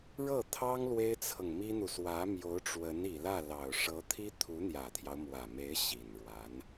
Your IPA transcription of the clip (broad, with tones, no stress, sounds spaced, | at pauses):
ɻ ɤ˥˩ t̪ʰ ɑ˥ ŋ l w e˥ ɪ̯ t͡sʰ ɤ˨ ŋ m i˥ n̪ u˨ s w ä˧˥ m j o˧˥ ʊ̯ ʈ͡ʂ w ə˧˥ n i˨˩ l ä˥˩ l ɑ˨˩ ʊ̯ ʂ ɤ˧˥ t̪ʰ i˥ t̪ʰ u˧˥ n̪ j ä˨˩ t̪ʰ j ɑ˦ ʊ̯ m w ä˨˩ m e˧˥ ɪ̯ ɕ i˨˩ n ɻ w a˧˥ n